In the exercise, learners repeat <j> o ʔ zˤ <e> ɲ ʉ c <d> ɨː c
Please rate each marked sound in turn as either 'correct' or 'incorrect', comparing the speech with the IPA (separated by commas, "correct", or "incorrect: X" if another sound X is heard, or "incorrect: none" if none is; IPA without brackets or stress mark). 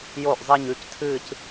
correct, correct, incorrect: tʰ